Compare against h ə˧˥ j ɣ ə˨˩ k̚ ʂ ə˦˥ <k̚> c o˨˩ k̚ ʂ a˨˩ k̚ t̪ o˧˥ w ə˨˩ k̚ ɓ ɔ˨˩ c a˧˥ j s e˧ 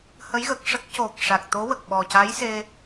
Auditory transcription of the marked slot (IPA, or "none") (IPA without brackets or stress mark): k̚